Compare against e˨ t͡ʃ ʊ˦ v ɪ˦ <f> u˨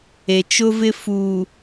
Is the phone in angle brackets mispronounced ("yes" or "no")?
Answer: no